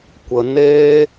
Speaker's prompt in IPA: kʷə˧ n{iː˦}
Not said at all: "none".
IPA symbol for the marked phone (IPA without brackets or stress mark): eː˦